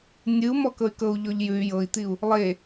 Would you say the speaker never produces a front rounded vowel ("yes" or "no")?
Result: no